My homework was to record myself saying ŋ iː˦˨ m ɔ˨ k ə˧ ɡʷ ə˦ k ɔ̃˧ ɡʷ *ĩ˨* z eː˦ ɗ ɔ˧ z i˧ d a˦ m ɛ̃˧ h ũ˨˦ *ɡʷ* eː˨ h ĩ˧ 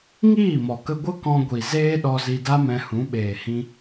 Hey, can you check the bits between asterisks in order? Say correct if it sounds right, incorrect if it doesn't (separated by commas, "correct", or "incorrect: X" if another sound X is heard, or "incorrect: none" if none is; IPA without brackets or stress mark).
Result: incorrect: i˨, incorrect: ɓ